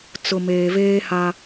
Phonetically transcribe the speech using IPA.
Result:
t͡sʊ˨ meː˨veː˦ha˦

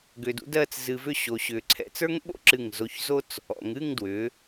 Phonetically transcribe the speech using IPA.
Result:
ɡʏː˧dṵ˥dɜː˥˧t͡s zɨ˧vʏ˥˧ ɕo˧ɕʏː˧ ǀʰɛ̰˧t͡sə˞˥ŋɓo̰˥ǁɨ˧˩ŋ zo˧çzo˥t͡s | ɔ̰˩˧ŋɨː˥˧ŋdwʏː˩˧

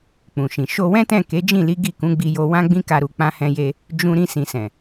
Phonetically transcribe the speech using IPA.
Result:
k͡pũ˨ʃĩ˨ ʃo˧wɛ̃˦tɛ̃˦˨ ke˨˦d͡ʒĩ˦˨li˨˦ ɡi˦˨kũ˨˦ɡ͡bi˧jo˧ wã˦ɡ͡bĩ˦ka˧ɾu˨ k͡pã˧hɛ̃˧je˧ | d͡ʒũ˧ ɾĩ˧sĩ˨sɛ̃˨

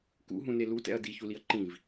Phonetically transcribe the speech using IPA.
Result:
kṵɦũne lutɛ̰ɐ̯ diçuliɐ̯ ǃĩv

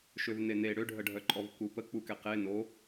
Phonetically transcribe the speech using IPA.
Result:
ʃøvnene ɽøɖʱəɖʱœǃʼɔv kupə k͡pukɛqe no

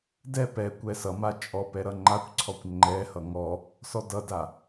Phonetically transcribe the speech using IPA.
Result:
dɛ pɛkʷɛ sʌma t͡ʃʼɔpɛ ɾʌŋ͡ǃakʷǀʰɔkʷ ŋ͡ǃɛhʌ ŋɔ | sɔdʌda

